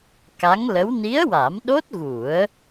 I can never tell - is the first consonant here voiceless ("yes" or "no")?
yes